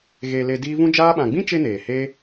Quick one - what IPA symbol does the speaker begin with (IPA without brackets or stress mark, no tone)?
ɣ